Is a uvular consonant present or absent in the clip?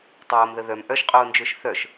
present